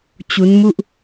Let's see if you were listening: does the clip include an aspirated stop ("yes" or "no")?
no